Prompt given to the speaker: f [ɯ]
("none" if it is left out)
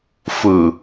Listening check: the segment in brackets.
ɯ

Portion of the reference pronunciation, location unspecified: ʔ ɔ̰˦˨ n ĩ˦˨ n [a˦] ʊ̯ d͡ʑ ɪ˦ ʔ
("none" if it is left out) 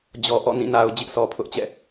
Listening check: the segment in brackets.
a˨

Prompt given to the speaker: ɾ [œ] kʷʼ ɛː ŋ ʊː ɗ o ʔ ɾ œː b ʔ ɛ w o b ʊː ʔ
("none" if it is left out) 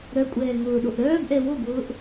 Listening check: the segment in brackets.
œ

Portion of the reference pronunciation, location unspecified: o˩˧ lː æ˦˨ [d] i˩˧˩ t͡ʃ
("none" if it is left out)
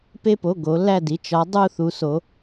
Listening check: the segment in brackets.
d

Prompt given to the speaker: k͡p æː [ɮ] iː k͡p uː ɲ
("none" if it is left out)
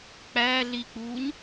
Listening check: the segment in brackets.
ɮ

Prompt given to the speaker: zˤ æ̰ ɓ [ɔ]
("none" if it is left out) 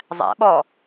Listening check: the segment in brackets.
ɔ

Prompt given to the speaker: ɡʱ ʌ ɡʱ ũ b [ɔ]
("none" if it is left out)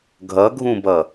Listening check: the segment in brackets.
ʌ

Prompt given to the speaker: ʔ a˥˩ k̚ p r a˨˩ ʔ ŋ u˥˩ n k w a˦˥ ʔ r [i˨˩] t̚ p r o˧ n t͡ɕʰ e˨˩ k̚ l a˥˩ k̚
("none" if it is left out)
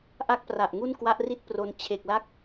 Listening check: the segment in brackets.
i˥˩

